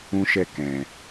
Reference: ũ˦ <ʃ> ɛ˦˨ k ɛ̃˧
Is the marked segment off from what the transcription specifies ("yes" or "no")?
no